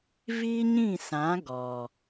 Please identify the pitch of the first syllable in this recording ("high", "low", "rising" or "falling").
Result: high